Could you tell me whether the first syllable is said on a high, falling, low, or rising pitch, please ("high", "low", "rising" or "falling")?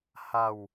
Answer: falling